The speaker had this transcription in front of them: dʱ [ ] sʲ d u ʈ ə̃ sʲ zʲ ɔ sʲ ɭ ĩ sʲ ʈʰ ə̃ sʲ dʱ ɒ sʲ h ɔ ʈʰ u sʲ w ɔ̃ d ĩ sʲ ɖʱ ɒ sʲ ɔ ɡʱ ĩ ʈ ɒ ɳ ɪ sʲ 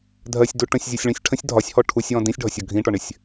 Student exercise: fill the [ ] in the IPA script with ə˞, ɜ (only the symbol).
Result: ɜ